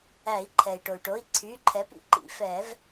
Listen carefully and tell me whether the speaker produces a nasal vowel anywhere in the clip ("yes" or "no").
no